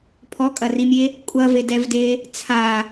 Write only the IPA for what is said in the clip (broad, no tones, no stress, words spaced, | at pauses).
pʰɔkʼɐrimʲe | kʷʼɐvedɛvde | t͡sʰa